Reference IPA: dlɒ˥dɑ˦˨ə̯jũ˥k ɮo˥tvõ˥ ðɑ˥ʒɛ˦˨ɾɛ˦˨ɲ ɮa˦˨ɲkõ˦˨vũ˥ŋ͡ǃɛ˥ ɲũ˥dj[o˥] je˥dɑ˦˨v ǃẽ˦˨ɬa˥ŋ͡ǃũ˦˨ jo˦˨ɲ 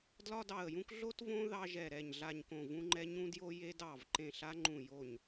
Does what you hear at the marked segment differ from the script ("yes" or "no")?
no